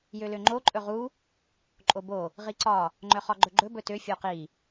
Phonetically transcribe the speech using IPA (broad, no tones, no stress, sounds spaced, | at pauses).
j ø l ø ŋ͡ǃ o ǃʼ ɵ ʁ u | ǃʼ o b o | ʁ i ǀ ɒ | ŋ͡ǃ œ χ ɒ ɡ͡ǃ ɵ ɡ͡ǃ ɵ b ɵ t ø fʲ o q i